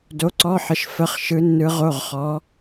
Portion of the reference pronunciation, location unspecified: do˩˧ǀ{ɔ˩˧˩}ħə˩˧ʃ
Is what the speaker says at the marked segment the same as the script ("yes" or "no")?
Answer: yes